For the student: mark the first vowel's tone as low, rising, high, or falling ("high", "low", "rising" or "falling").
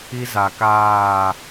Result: high